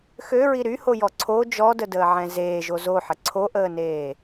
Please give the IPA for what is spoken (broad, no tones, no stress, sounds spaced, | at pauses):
x ø ɹ i ɾ y h o j ɔ ǀʰ o d͡ʒ ɔ d ə d əː ʕ ɛ̃ z eː ʒ o z o ħ ə ǀʰ o ʔ əː n eː